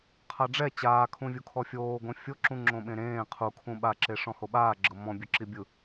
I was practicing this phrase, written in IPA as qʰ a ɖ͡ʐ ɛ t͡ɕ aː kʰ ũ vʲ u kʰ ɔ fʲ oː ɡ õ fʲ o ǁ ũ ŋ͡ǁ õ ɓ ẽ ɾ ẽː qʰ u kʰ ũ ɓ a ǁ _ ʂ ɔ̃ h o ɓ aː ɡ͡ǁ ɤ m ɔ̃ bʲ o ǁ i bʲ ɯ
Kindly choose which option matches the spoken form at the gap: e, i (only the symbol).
e